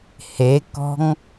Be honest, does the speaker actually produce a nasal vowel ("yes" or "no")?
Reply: no